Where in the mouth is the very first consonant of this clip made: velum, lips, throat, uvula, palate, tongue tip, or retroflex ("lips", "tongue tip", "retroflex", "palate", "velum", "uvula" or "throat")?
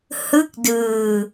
throat